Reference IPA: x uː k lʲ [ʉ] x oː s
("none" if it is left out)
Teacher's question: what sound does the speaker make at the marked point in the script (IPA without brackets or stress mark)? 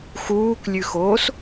ʉ